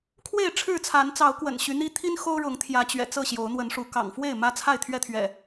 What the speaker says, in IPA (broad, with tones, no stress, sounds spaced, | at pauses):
kʰ w e˥˨ ɪ̯ ʈ͡ʂʰ ɻ̩˥˨ t͡sʰ a˨˦ n t͡s ɑ˨˦ ʊ̯ k w ə̰˨˩ n ɕ y˨˦ n̪ i˦ t̪ʰ i˦ n x o˦ ʊ̯ ɻ ʊ˨˦ ŋ t̪ʰ j ä˨˦ t͡ɕ ɥ ɛ̰˨˩ t͡s ɤ˥˨ ɕ j o˨˦ ʊ̯ n̪ w ə˨˦ n ʂ u˨˦ k ɑ̰˨˩ ŋ f w e˥˨ ɪ̯ m ä˦ t͡sʰ a˥˨ ɪ̯ t̪ʰ ɥ ɛ˦ t̪ʰ ɥ ɛ̰˨˩